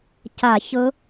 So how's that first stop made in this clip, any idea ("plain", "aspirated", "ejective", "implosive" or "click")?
plain